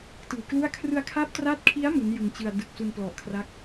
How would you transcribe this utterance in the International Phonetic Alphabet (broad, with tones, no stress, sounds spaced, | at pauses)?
t ɯː˨˩ k l u˥˩ a̯ kʰ r ɯ˧ a̯ kʰ a˦˥ p̚ t r a˦˥ t̚ kʰ i˦˥ a̯ m u˦˥ n j ɯ˧ ŋ t͡ɕ ɯ˧ a̯ d ɯ˨˩ k̚ s u˧ n p l ɔ˨˩ ʔ kʰ r a˦˥ k̚